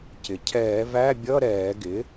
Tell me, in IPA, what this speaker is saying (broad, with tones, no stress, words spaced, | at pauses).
cɪ˩cʰɛː˧˩˧væ˧˥˧ bʲʌ˧˥˧ ɾɛː˧˩˧ɡɪ˩˥